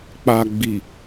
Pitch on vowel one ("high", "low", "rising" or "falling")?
low